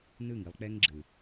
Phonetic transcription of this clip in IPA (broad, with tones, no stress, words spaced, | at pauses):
nɯ˦˨ŋi˧lˠk͡pɛ˦ŋɡ͡ǁɯ˨